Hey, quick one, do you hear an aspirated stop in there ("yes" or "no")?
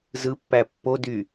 no